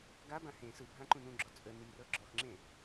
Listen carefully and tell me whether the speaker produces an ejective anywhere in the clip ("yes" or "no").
yes